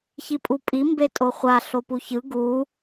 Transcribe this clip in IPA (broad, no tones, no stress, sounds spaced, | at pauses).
ç i pʼ u pʼ i m b e tʼ o χʷ a ɬ o p u ç ɯ ɡ u